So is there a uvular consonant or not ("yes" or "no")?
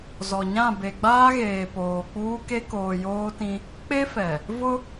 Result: no